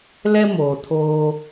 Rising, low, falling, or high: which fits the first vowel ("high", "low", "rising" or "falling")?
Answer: high